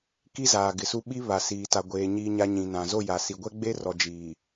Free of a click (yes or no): yes